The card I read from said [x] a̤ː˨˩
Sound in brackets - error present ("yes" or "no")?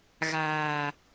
yes